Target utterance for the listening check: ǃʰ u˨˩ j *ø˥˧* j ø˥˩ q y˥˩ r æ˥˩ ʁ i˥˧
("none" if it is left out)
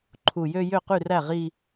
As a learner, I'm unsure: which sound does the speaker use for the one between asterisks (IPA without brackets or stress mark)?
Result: ø˥˧